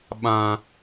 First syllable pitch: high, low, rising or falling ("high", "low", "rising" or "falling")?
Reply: low